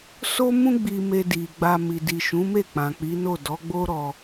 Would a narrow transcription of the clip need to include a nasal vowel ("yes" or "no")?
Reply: yes